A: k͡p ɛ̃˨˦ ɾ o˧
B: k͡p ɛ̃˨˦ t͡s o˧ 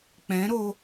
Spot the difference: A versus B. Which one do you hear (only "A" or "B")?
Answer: A